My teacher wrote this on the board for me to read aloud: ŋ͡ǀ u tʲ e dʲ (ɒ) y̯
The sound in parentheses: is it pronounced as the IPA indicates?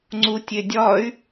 yes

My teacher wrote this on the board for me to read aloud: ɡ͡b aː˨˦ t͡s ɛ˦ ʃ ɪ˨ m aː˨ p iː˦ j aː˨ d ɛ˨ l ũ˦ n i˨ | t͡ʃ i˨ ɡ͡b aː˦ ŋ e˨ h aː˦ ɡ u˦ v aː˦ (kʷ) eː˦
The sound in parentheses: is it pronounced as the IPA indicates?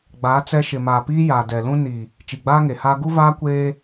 yes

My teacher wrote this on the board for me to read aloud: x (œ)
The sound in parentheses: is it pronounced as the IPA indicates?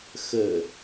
no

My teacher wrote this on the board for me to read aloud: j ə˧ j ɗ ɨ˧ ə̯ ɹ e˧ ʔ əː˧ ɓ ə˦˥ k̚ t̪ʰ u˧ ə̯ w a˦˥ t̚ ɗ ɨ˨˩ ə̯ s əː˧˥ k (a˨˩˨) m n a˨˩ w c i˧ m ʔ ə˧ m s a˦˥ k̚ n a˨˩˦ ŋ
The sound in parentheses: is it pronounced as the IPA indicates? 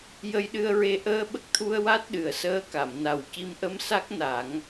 yes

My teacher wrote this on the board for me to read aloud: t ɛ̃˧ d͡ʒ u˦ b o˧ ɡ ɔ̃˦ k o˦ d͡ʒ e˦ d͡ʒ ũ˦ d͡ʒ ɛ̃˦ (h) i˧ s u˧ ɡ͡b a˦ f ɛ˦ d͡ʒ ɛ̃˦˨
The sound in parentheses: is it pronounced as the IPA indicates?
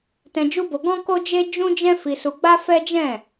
no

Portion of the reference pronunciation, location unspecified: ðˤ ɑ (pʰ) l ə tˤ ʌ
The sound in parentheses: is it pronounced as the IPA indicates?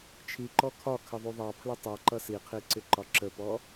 yes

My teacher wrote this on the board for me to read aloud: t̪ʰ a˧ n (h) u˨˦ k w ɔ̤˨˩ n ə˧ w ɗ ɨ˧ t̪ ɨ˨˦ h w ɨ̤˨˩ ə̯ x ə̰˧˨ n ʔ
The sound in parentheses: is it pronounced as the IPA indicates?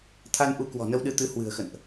no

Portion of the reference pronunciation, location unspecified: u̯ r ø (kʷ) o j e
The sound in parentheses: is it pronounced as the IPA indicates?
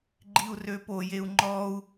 no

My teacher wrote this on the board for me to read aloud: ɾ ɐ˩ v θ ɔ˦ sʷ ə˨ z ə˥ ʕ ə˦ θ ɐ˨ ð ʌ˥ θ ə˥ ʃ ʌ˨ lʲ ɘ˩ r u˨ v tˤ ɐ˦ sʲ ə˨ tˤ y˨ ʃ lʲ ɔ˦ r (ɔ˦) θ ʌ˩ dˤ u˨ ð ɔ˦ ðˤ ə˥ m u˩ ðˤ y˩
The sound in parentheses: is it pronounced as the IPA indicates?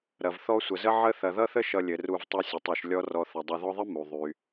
no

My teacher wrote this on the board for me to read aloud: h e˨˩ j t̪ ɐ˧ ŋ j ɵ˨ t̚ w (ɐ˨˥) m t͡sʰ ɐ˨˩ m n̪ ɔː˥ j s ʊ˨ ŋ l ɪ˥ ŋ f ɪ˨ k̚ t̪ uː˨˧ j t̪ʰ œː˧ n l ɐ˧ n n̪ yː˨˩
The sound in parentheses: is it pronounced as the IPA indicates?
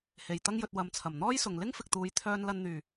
yes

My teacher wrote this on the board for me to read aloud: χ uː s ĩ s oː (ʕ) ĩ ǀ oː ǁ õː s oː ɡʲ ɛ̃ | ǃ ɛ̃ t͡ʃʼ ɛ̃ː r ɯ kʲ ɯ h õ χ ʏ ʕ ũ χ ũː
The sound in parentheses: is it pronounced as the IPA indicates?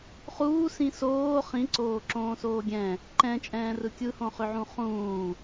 no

